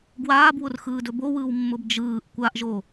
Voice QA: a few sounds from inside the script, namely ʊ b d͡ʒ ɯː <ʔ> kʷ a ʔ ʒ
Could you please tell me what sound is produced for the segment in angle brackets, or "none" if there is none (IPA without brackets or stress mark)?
ʔ